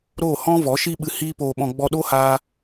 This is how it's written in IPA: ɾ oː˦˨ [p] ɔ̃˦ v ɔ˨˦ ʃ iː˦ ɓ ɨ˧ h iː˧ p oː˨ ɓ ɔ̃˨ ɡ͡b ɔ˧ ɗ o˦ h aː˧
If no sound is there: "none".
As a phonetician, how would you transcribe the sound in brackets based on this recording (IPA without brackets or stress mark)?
h